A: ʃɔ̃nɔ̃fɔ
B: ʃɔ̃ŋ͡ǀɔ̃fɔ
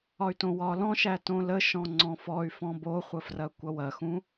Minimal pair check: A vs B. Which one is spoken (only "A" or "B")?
B